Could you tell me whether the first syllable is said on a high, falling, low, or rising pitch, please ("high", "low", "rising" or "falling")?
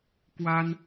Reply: high